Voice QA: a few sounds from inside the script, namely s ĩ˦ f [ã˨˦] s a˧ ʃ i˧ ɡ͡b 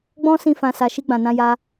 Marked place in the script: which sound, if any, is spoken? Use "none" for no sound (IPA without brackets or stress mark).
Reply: ã˧